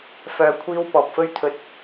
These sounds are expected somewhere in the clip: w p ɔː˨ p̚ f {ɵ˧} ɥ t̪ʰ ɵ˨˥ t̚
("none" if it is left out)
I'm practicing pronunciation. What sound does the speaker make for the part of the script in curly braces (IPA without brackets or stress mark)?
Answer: ɵ˧